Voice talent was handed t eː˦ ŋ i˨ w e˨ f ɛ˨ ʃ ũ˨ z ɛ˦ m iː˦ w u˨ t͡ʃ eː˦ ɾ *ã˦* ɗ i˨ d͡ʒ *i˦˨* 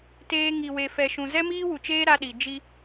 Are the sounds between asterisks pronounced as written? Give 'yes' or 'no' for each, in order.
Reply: no, no

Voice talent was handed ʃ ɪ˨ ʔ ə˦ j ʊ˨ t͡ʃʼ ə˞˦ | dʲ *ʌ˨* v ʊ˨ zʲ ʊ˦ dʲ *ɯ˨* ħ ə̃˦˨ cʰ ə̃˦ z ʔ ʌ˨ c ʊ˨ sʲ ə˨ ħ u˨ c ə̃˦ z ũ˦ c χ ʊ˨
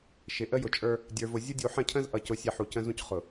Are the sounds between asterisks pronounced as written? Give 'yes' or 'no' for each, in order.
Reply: no, no

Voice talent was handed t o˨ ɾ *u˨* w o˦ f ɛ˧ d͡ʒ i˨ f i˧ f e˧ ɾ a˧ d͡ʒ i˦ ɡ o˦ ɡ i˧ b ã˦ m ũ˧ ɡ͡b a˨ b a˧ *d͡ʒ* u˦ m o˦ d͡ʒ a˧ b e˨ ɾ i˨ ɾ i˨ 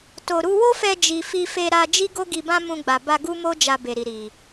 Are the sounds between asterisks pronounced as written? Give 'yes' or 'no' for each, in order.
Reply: no, no

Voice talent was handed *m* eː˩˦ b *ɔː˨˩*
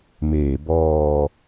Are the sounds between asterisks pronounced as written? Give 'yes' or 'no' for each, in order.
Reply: yes, no

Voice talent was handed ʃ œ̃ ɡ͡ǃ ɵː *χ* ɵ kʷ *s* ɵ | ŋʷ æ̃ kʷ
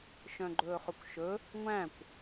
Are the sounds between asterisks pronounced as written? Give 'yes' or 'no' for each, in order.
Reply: yes, no

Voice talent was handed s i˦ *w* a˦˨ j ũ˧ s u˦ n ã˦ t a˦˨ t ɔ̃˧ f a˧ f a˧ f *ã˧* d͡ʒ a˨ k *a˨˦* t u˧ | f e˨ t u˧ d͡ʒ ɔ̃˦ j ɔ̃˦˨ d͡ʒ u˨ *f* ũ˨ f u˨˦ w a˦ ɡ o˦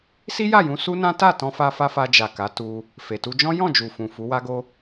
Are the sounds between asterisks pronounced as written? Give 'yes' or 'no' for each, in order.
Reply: no, no, yes, yes

